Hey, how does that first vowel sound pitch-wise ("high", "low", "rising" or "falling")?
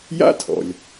high